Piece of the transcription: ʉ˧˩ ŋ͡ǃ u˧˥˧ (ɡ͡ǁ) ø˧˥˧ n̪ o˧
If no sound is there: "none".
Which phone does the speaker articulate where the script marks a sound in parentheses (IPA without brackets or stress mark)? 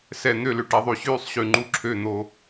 ǁʰ